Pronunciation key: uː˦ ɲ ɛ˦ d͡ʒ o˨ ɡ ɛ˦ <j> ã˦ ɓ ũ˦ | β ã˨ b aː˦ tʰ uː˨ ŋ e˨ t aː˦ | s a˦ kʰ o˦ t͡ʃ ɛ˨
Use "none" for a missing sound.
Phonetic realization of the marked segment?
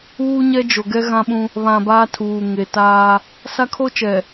ɣ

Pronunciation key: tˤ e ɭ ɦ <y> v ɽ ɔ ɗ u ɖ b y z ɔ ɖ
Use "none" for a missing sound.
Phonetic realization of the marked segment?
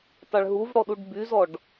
u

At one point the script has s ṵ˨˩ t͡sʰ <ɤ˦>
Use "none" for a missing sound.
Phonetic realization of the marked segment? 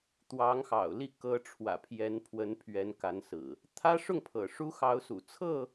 ɤ˥˨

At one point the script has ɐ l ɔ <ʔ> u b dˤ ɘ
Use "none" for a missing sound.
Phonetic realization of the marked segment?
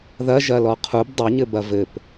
qʰ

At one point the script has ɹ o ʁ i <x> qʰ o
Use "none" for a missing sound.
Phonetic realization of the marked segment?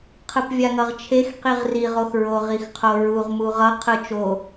x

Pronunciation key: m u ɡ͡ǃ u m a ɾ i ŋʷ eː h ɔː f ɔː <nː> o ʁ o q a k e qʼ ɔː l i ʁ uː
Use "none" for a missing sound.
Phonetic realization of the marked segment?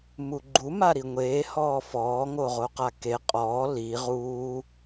ŋ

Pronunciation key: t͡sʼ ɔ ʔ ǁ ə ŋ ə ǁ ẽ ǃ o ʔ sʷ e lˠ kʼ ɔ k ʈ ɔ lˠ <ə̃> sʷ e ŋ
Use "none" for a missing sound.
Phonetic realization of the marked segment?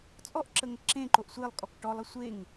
ə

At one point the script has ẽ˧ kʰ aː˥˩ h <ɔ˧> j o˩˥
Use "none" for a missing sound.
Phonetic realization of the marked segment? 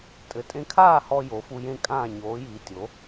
ɔ˧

